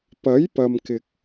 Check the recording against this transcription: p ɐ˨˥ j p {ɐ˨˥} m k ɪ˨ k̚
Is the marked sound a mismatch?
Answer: yes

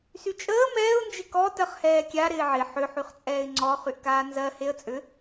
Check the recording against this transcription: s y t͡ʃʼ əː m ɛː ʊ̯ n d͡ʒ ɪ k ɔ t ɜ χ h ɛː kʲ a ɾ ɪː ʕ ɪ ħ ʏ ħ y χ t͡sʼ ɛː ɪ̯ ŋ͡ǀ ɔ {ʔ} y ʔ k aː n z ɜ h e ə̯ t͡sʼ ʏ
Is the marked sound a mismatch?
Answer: yes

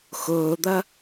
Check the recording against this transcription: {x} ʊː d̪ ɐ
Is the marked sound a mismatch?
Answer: no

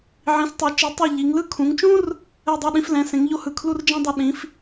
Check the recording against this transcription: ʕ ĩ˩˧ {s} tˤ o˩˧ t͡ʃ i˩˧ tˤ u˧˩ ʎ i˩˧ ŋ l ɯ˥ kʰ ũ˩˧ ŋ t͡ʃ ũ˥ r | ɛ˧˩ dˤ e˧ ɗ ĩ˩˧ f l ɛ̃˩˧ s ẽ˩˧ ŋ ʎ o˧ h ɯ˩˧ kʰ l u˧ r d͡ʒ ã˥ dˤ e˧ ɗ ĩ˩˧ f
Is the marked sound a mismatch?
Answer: no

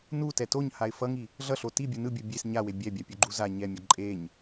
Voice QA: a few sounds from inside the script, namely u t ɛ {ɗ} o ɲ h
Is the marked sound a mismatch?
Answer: yes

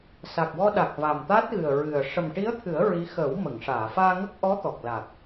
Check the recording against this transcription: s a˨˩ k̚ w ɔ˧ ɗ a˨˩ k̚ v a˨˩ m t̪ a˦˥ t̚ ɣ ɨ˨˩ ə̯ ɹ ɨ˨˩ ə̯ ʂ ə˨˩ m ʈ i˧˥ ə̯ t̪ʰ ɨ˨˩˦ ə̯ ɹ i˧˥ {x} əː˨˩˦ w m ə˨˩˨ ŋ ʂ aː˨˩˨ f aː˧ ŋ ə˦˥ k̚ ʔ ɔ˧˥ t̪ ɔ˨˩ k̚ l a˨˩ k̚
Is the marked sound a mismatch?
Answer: no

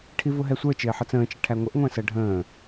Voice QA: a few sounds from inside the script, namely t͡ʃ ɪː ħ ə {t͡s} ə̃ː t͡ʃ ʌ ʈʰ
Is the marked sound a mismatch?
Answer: no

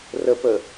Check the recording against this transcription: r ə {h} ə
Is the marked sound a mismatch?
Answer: yes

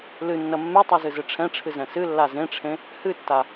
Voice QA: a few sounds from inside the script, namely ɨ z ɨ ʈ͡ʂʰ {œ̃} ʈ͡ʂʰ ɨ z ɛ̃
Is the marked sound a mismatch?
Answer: yes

